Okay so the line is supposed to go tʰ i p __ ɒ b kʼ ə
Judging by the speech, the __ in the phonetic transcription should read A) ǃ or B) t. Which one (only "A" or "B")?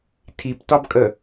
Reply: B